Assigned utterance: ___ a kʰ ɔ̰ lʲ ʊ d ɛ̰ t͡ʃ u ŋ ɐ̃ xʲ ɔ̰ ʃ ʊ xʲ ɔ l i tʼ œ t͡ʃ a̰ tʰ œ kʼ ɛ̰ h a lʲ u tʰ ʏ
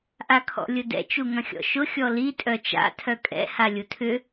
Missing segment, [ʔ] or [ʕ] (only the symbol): ʔ